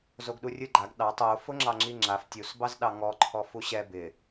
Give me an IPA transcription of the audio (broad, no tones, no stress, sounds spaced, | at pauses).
z o ɡ ɗ u rʲ ɯ ɡ͡ǃ a ɡ ɗ ɑ tˤ o f ʊ ŋ͡ǁ ɑ ŋ͡ǁ i ŋ͡ǁ a f tʲ u s b ɑ z ɗ ɑ ŋ ɔ ǃʰ ɔ f u ɕ ɛ b ɪ